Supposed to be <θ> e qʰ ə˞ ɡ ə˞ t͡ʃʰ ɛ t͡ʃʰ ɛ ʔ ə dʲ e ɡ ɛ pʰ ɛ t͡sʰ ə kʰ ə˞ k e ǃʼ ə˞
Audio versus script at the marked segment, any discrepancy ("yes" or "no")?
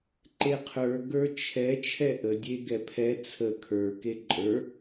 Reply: yes